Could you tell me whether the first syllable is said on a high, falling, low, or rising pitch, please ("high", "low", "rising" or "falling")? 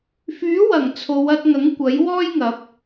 rising